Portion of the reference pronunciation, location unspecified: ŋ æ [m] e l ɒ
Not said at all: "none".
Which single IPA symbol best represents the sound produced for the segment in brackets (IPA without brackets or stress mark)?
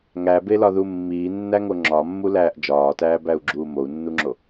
b